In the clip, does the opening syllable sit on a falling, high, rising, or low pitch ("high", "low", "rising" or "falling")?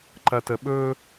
low